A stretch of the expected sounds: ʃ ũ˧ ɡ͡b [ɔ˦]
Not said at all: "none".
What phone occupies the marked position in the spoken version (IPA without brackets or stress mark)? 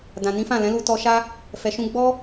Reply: ɔ˦